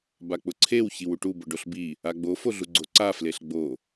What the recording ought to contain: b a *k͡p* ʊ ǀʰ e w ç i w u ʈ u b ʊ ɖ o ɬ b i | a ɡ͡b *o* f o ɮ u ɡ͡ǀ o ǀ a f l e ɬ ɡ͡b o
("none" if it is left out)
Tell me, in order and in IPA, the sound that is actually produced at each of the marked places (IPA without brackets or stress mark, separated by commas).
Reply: k͡p, o